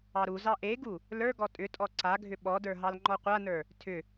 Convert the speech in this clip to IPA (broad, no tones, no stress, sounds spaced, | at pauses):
ɑ ɾ u z ɑ ʔ e ɡ u | l ə˞ ɡ ɔ tʼ ʏ tʼ ɔ ǀ a ɡʱ ʏ ɓ ɔ d ə˞ ɦ ɑ l ŋ͡ǃ ɔ qʷ a n ə˞ | tʰ ʏ